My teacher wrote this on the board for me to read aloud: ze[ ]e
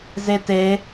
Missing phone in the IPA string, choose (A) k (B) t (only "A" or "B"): B